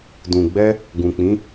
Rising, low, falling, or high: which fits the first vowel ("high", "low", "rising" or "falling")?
low